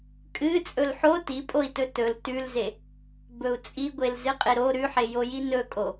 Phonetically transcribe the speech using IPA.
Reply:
kʼ ɨ t͡sʼ ɵ l ħ o t i pʼ o i̯ t ɵ t ɵ l t ʉ l z e | b ɵ u̯ t͡sʼ i ɡʷ e l z ɨ qʼ e ɾ o ɾ ʉ ħ e j o j i n ɵ kʼ o

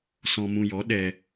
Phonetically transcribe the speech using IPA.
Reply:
s ɔ̃˧ m ũ˧ j ɔ˨˦ ɗ ɛ˧

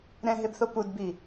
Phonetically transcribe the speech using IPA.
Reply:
ɾ ɛ̃ ɦ e b θ o p u d b i

